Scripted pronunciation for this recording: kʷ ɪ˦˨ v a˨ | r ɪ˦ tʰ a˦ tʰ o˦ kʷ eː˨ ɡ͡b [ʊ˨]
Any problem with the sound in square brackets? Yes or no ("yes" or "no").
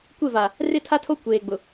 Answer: no